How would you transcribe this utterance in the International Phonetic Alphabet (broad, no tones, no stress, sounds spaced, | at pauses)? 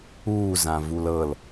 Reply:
uː z ã v u l ɤ l